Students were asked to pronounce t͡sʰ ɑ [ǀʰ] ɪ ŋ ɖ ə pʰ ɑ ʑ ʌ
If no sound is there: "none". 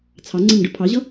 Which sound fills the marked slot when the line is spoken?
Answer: ŋ͡ǀ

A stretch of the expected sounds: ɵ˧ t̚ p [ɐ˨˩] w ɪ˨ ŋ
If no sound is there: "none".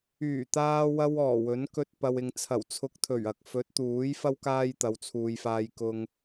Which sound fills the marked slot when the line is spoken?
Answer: ɐ˨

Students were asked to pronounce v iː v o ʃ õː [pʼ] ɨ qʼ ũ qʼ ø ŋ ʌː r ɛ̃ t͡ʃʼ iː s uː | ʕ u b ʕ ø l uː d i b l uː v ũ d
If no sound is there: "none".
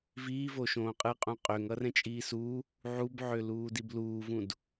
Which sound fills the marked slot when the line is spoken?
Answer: qʼ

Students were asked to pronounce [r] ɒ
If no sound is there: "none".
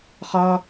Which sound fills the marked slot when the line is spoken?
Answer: χ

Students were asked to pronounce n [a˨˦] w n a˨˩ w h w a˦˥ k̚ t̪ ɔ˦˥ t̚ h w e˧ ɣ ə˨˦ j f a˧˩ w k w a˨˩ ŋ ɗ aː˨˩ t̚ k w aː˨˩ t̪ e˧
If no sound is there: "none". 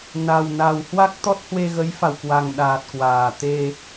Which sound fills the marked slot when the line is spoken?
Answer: a˨˩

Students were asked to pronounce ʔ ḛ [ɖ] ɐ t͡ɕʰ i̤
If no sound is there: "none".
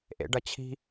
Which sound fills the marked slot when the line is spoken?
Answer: ɖ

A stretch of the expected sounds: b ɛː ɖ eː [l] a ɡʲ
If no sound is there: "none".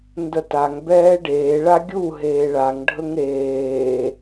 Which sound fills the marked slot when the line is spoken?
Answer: ɭ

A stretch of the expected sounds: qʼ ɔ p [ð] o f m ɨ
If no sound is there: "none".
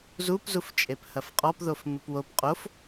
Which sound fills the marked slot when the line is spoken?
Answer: ð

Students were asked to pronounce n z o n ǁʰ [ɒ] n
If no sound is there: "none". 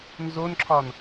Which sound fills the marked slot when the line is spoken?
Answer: ɒ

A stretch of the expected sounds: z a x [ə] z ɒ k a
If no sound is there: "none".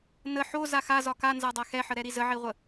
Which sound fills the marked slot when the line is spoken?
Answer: a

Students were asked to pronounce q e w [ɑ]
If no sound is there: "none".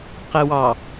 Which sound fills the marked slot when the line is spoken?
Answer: ɑ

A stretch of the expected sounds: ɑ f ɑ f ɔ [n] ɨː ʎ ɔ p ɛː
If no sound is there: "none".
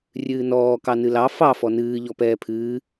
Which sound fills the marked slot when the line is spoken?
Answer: n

